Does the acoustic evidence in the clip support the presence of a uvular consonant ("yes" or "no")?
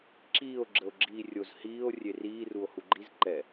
no